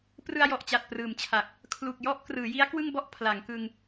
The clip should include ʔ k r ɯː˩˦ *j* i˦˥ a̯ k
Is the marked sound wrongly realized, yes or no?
no